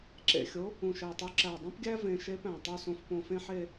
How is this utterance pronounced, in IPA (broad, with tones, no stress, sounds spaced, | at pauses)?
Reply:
ǁ ḛ˨˩ xʲ o˧˥ | ũ˨˩ ʃ æ˨˩ tˤ u˧˥ ǁ æ˨˩ dˤ ũ˥ p ɡʲ æ˥ v ẽ˧˥ ʃ e˧˥ p æ̃˨˩ tˤ o˥˧ s õ˧ f p õ˧ f ẽ˥ ħ e˥˧